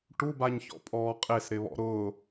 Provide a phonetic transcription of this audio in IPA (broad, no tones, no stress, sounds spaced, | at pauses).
ʈ u b a ɲ ç ɔ̰ pʼ ɔː qʼ e s ɾ ɪ β ɔ̰ ɾ ʊː